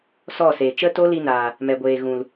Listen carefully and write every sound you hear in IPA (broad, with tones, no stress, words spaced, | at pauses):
sɔ˦˨se˨ t͡ʃə˦to˦li˧naː˨ | mɛ˨ɡʷeː˨ ɣũ˨l